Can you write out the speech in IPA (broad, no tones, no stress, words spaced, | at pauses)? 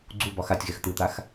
ɡ͡ǀu bɒxatʲɣɛx t̪ɯt̪ax